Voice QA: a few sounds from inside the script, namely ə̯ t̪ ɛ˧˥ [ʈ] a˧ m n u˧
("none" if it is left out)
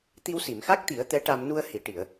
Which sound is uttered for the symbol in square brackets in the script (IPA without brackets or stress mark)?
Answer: ʈ